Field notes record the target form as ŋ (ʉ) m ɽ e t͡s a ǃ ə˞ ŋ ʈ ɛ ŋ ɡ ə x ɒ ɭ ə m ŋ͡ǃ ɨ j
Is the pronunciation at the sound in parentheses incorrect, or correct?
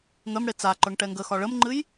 incorrect